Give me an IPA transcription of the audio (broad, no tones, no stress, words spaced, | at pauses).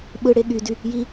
ɓɯɽe ɠydy | ji